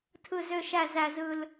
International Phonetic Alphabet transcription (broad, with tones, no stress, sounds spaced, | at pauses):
tʰ ɯ˨˩ z ø˨˩ ʃ æ˨˩ z æ˨˩ z ɯ˨˩ l